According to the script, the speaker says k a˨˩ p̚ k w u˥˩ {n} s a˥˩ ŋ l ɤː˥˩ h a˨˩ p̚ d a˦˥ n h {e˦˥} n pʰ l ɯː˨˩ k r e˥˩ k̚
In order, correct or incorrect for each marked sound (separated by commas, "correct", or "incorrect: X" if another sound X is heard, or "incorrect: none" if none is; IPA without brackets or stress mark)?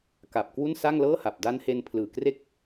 correct, incorrect: e˧